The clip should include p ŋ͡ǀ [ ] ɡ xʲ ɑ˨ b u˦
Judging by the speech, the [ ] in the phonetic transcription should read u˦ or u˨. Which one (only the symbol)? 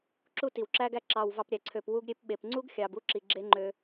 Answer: u˦